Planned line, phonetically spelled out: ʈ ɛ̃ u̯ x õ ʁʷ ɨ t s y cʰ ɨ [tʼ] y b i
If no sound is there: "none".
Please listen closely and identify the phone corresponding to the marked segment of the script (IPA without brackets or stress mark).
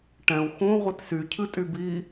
tʼ